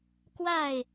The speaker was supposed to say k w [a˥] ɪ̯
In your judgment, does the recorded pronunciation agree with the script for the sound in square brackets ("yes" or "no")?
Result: no